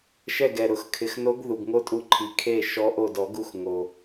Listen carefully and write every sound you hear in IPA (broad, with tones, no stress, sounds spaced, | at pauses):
ʃ ɛ˦˨ ɡ ɛ˨˩ ɾ ʊ˨˩˦ x kʰ ɪ˨˩ x n o˧˥ ɡ ð u˨˩ ɡ ŋ o˥ tʼ u˧˥ ǃʰ i˨˩ kʰ e˦˨ ʃ ɔ˧˥ ʔ o˦˨ d ɔ˨˩˦ ɡ u˦˨ x ŋ o˨˩